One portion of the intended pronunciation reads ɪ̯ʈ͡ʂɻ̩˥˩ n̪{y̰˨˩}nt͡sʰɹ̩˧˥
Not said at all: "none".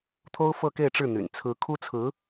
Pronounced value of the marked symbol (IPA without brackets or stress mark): y̰˨˩